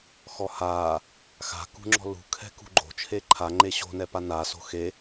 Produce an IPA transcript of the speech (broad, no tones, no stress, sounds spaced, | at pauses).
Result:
x ɔ h aː | x a̤ k ṳ ŋ͡ǁ ɔ̤ l ṳ kʰ ɛ̤ k ṳ ɡ͡ǃ o̤ t͡ʃʰ e ǃʰ a ŋ͡ǃ e ɕ o̤ n ɛ p a n a s o̤ x e